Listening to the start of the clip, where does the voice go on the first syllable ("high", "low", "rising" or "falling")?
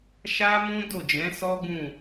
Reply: high